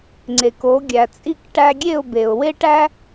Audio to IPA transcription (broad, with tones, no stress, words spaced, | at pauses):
ŋ͡ǀe˩ko˩˥ ɡʲæ˩t͡sʼi˥˩k ʈæ˧ɡʲe˥˩ʊ̯be˩ʊ̯ we˥ʈæ˥